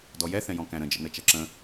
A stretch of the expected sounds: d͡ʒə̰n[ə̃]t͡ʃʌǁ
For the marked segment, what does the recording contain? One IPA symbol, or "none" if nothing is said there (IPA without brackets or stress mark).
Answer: ə